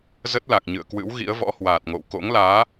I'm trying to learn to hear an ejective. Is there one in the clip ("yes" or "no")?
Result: no